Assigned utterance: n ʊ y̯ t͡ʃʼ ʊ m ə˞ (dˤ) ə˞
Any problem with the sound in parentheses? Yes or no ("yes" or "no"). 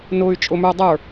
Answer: no